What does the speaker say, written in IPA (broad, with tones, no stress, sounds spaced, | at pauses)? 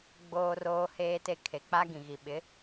ɡ͡b oː˨ r oː˨ h eː˨ t e˨ kʰ e˨ k͡p a˦ ɡ ĩ˨ ɣ i˨ ɓ ɪ˨˦